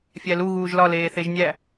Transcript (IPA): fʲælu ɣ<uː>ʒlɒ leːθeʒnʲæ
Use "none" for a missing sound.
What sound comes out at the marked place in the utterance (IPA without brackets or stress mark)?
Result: uː